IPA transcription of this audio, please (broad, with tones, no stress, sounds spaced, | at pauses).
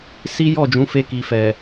s i˦ j ɔ˦˨ d͡ʒ ũ˨˦ f e˧ k i˨ f ɛ˨